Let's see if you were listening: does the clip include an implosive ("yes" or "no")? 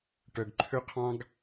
no